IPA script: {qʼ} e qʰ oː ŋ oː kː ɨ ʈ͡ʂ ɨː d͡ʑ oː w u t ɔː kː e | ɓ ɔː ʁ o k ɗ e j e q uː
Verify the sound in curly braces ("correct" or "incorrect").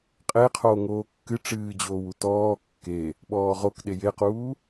correct